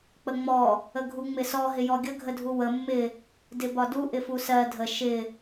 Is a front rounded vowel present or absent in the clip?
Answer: absent